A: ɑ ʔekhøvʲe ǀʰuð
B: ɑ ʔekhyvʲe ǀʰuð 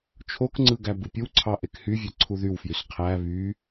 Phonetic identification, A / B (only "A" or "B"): B